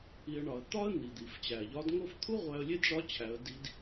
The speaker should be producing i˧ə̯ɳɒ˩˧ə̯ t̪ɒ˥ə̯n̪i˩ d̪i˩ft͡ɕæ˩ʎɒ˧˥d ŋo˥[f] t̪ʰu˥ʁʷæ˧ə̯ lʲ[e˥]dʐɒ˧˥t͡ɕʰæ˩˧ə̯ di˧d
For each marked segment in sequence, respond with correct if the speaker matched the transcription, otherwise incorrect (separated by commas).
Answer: correct, correct